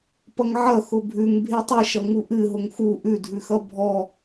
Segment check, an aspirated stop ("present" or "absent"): absent